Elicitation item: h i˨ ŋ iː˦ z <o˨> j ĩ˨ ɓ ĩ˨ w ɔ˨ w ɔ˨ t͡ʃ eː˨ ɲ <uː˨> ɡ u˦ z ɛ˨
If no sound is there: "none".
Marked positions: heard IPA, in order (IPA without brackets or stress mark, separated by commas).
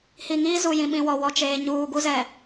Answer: u˨, uː˨